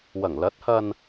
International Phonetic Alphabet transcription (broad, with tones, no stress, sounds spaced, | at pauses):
w ɐ˨˩ ŋ l ɐ˨˥ t̚ h ɐ˧ n